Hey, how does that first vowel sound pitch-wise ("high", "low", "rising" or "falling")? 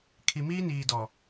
low